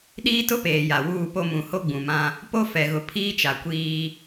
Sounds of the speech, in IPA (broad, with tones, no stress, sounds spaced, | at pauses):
ɗ iː˦ t ʊ˦ p eː˨ j a˨ w uː˦˨ p o˦ m ũ˨ h o˦ ɡ͡b ũ˨ m ã˦ | p o˦ f ɛ˨ ɣ ʊ˨ pʰ iː˦ t͡ʃ a˨ kʷ iː˦